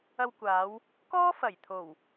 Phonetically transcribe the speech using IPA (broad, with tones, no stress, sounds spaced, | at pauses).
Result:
ɐ˧ w kʷ aː˨˧ w | k ɔː˥ f ɐ˨˩ j t̪ʰ o˨˩ w